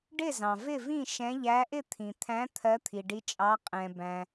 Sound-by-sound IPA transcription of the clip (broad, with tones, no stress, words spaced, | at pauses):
ɖɪ˥˩zɑ̃˩ vɪ˥˩vĩ˥˩ ʃɛ̃˨˦ʎæ˨˦ʔɪ˥˩ t̪ʰĩ˩t̪ʰæ̃˨˦ t̪ʰɜ˨˦t̪ʰi˩ɖi˨˦t͡ʃʼɑ˨˦ qʼɛ̃˩bæ̃˩